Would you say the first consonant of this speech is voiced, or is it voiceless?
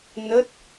voiced